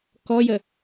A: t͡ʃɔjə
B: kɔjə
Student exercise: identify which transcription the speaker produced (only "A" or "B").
B